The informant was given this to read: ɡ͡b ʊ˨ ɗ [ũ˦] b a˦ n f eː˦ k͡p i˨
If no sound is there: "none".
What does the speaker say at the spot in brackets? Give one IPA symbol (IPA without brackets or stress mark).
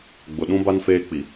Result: ũ˦